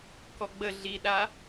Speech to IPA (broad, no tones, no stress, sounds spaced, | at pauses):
k ɔ ɡ͡b ə ɮ i ɗ a